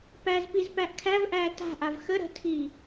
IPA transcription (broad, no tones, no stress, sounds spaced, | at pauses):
p æ z p i z p æ ʔ kʰ æ v ʔ æː t a̤ ʔ a v x ə ɾ ə̤ tʰ iː